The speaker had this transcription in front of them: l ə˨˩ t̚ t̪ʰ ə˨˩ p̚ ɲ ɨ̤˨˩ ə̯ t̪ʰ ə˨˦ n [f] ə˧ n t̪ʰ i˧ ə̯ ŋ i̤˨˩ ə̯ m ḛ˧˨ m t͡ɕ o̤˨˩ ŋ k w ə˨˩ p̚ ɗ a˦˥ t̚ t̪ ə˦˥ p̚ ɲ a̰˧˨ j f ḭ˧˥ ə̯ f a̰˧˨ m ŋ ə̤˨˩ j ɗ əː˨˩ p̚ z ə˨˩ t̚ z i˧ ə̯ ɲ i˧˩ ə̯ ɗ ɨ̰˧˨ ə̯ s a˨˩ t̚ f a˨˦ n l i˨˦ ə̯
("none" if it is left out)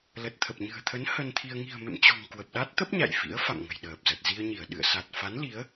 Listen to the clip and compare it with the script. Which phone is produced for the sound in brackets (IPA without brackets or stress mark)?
h